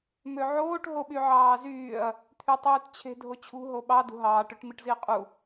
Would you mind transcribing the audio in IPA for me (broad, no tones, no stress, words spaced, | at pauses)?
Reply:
møʕoːʈ ɦoɓyʕɑːzyːɐ̯ | t̪ʰytˤyːtt͡ɕʰe̤ dʱot͡ɕʰṳ ɦoɓɑ dṳɦɑːʈ øʈmiʈziɐ̯qʼu